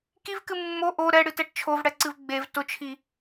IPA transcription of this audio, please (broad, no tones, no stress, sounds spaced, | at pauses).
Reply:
k i v k ɨ mː o ʔ o ɾ ɛ ɽ ɨ t ɛ ʈ t͡ʃʰ o v ɽ ɛ ǀ ɨ v ɡ͡b e v t ʊ t͡ʃʰ i